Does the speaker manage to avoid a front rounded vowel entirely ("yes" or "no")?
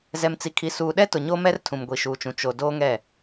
yes